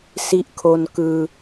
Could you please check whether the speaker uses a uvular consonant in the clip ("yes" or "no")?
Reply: no